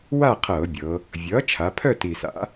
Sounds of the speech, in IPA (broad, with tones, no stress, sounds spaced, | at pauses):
w a˥˨ qʰ ɤː˧˩˧ bʲ ɤ˩˧ | vʲ ʌː˩˥ t͡ʃʰ a˩˧ pʰ œ˥˨ t i˨˩ s a̰˩˥